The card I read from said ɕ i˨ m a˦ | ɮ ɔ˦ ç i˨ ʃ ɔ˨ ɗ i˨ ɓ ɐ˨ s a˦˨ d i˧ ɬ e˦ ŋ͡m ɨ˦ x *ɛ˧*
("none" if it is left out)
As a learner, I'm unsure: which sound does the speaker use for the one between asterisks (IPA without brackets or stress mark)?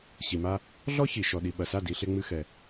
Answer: ɛ˧